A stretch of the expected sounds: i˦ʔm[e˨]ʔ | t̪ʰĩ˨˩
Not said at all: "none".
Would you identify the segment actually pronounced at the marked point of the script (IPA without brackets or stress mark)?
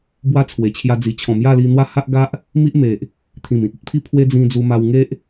e˨